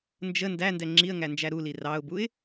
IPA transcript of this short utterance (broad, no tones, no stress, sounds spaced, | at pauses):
n d͡ʒ ə n d æ n d ɛ ŋ͡ǁ i ə̯ ŋ æ n d͡ʒ æ ɾ u l i r ɑ ʊ̯ b u ɪ̯